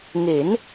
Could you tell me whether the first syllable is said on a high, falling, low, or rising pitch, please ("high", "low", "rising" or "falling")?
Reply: rising